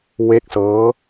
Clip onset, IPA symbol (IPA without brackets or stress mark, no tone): w